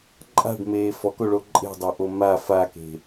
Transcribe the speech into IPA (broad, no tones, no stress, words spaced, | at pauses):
ǃʼa̤ɖmeː fɔkoɭo ǃʼe̤dˤoʔo ma fake̤